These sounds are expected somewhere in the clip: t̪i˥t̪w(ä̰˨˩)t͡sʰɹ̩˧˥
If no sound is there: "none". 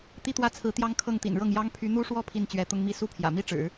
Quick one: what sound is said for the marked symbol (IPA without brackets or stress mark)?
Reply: ä˥˩